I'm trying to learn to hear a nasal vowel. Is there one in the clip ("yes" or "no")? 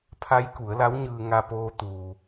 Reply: no